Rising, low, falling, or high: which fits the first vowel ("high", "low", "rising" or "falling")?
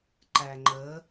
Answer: low